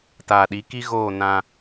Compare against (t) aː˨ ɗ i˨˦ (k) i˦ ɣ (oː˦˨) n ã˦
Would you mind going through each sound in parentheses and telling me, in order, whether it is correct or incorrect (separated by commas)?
correct, correct, correct